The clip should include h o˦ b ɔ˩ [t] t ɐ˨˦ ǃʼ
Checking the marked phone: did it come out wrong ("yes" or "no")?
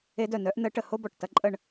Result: yes